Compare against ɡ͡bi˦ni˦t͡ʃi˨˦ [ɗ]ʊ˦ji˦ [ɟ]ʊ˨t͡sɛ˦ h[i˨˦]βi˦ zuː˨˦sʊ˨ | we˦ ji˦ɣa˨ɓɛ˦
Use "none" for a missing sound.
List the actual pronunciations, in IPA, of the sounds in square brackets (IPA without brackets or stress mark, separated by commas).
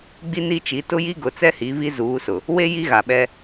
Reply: t, ɡ, i˨˦